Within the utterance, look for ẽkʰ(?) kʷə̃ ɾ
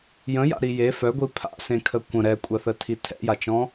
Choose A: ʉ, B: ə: B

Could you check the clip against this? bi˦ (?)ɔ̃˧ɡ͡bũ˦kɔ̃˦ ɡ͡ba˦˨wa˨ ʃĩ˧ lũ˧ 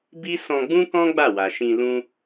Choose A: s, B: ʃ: A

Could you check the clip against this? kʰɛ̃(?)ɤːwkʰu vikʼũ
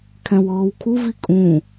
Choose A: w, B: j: A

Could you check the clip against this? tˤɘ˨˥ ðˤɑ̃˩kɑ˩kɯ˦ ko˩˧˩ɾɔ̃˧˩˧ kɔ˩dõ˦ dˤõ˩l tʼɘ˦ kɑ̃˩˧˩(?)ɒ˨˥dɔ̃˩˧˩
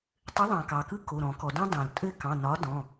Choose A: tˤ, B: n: B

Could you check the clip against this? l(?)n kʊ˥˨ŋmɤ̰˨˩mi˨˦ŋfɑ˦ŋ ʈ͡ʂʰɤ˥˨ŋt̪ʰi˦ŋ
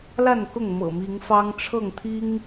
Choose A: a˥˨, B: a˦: A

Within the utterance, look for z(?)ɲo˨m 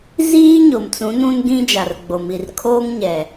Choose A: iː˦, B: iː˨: A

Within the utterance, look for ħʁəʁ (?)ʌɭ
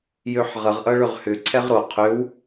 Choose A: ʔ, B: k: A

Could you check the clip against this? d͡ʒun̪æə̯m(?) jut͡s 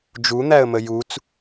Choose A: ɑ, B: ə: B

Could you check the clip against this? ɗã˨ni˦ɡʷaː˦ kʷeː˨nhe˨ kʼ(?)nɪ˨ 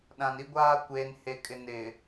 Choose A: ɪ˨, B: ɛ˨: A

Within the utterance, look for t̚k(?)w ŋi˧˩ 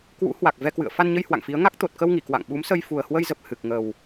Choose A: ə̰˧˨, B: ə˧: B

